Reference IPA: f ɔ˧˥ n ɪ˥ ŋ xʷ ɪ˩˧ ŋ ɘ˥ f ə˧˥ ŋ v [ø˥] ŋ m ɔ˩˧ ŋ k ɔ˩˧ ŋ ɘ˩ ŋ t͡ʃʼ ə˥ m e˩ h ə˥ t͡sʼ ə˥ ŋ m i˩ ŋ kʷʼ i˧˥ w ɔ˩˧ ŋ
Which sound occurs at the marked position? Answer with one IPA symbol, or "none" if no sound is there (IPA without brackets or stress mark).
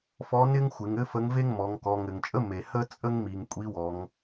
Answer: e˥